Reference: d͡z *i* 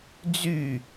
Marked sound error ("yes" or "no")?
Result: yes